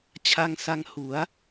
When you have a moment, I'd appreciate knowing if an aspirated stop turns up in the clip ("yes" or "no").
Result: yes